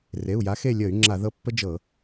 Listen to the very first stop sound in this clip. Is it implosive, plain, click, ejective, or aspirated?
click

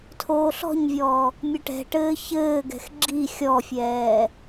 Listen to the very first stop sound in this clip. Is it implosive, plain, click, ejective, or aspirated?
aspirated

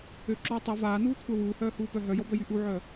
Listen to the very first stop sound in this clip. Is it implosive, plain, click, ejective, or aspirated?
click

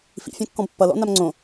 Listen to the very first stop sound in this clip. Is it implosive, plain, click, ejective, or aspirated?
plain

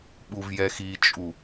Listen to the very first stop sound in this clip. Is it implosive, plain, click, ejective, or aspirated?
implosive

